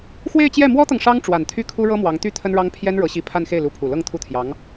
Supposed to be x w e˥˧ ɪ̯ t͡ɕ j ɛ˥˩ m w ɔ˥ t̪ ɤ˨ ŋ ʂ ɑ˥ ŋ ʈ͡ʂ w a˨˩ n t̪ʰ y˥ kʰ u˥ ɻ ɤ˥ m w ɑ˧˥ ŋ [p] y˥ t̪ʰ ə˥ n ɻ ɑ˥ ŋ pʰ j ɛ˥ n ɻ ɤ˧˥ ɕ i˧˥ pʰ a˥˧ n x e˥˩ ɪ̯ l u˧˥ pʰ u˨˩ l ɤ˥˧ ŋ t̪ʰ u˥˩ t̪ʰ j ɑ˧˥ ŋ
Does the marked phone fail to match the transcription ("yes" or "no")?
yes